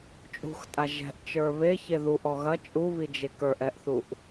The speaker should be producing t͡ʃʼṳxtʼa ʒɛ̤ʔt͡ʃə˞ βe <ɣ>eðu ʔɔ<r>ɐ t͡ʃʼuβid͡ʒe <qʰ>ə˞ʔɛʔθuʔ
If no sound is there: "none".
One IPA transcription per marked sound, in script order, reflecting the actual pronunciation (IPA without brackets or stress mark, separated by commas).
ç, ɣ, k